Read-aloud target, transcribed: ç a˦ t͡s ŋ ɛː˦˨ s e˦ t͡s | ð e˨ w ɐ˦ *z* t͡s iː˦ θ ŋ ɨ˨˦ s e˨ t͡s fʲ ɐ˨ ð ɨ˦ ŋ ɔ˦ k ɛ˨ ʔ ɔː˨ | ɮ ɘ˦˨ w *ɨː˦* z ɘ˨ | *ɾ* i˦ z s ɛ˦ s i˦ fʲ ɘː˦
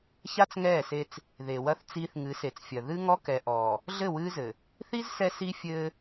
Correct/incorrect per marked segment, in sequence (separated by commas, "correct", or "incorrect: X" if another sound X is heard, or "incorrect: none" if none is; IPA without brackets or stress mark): incorrect: θ, correct, incorrect: θ